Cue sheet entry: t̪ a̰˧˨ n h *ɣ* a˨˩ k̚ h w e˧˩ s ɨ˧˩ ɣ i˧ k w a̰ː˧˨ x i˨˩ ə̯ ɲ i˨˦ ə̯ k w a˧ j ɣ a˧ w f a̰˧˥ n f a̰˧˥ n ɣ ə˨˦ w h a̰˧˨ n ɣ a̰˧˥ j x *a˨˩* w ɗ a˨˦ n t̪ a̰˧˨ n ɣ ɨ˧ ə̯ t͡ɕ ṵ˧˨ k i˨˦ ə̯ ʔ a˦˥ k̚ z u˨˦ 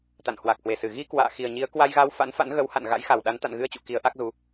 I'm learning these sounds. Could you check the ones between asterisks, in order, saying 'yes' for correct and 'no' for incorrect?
no, yes

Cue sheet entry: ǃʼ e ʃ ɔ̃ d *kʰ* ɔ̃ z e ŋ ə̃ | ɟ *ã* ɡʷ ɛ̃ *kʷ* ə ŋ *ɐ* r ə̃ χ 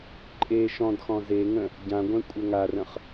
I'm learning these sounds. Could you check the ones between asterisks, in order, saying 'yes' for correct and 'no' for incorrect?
no, yes, no, no

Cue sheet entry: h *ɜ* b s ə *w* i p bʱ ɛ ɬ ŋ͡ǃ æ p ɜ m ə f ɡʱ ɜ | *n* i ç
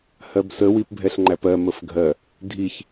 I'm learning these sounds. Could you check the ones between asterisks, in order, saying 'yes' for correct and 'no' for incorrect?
yes, yes, no

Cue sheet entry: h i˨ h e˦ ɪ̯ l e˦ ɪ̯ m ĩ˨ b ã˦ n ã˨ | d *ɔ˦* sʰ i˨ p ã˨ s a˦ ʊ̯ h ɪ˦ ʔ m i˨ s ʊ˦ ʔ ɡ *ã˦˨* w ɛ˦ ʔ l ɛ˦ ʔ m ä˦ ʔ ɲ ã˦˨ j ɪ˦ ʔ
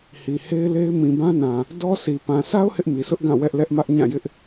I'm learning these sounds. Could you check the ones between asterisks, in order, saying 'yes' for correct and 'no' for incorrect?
yes, yes

